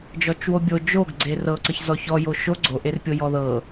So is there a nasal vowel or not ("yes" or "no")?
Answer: no